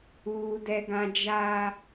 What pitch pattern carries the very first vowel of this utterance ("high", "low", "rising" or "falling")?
high